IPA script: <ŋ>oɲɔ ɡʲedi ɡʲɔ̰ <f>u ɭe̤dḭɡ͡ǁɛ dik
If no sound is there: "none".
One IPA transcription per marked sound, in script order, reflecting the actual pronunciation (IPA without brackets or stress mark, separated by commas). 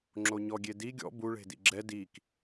ŋ͡ǁ, b